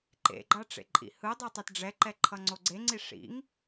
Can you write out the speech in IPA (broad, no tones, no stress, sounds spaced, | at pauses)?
ǃ ḛ ɡ͡ǃ a ʈ͡ʂ ḛ ǃʼ ḭ h ɯ dˤ u tˤ ɛ t ɖ͡ʐ ɛ ǃ ɛ ǃʰ ʌ ŋ͡ǀ o ɡ͡ǀ e ŋ͡ǀ i ʂ ḭ ŋ